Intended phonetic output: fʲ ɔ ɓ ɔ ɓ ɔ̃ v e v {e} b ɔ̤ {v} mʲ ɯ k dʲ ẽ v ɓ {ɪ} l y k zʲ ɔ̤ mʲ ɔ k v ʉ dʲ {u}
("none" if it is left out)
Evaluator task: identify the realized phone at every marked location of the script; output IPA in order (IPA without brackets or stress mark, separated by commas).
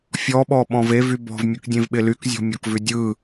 y, v, ɪ, ɯ